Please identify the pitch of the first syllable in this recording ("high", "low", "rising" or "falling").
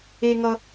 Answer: high